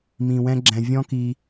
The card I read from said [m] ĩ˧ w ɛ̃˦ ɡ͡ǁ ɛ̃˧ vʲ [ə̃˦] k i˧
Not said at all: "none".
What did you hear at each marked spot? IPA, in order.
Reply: m, ɔ̃˦

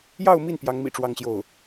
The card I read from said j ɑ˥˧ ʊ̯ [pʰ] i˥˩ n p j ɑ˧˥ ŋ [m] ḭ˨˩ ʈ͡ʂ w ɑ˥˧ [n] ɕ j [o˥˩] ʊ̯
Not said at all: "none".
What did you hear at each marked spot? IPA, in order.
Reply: m, m, ŋ, o˥˩

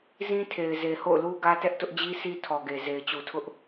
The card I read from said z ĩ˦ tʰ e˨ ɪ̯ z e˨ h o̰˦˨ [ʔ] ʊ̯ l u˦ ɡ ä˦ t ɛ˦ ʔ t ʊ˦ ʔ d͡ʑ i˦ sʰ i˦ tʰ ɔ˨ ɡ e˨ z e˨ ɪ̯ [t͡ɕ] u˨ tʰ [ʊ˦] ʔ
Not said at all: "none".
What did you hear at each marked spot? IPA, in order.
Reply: none, t͡ɕ, ʊ˦

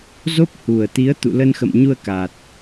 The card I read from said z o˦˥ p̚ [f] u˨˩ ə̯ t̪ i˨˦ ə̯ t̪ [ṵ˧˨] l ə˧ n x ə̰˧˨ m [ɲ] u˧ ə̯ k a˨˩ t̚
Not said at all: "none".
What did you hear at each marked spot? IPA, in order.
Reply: h, ṵ˧˨, ɲ

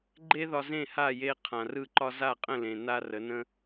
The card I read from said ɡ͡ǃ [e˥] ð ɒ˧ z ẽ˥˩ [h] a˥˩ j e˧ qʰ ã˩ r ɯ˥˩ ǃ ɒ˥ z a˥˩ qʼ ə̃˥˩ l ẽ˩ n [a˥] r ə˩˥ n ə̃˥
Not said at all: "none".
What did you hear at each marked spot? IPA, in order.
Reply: e˥, h, a˥

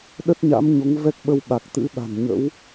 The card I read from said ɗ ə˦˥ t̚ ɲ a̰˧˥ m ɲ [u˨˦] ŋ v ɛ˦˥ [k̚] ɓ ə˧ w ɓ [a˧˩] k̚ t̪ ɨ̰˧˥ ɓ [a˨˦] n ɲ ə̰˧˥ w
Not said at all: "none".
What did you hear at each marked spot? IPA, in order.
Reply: o˨˦, k̚, a˨˩, a̤˨˩

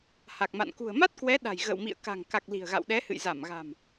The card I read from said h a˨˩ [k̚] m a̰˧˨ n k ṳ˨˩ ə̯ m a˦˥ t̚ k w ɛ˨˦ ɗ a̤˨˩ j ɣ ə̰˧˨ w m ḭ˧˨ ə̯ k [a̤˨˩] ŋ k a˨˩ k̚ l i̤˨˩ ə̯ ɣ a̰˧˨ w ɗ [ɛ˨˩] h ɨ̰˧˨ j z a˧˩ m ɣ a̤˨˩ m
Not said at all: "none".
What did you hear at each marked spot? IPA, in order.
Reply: k̚, a̤˨˩, ɛ˨˦

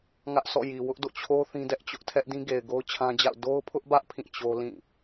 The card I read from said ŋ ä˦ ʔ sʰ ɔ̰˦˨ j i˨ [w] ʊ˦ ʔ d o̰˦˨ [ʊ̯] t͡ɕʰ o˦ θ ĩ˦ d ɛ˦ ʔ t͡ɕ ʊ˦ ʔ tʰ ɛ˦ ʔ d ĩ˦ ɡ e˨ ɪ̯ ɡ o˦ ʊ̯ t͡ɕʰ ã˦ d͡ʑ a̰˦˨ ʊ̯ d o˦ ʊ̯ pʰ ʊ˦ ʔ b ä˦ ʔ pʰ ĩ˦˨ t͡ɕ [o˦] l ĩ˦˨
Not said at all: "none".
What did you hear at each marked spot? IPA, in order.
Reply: w, none, o˦

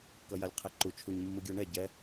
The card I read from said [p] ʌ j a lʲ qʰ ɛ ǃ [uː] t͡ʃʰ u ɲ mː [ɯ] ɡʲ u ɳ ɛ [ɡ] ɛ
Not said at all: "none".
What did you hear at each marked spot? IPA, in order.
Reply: k, u, ɯ, ɟ

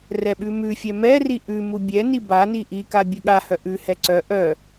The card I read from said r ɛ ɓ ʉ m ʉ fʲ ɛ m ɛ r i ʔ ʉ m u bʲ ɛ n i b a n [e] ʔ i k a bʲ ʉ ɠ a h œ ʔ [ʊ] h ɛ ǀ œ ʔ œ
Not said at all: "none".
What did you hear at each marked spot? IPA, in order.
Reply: i, ʉ

